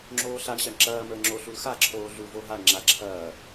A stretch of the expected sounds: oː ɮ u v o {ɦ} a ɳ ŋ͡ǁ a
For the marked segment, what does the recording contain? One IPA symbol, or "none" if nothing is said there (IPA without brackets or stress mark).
ɦ